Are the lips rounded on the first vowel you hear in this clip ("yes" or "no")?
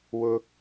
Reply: yes